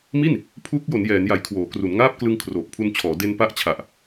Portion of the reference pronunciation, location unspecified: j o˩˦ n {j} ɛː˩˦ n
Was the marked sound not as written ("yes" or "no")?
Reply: no